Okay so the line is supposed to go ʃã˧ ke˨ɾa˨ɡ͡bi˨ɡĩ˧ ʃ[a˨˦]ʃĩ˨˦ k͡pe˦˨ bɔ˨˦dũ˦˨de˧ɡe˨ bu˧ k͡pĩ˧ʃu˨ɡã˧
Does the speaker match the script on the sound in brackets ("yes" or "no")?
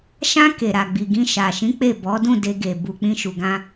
no